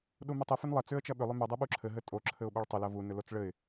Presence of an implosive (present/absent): present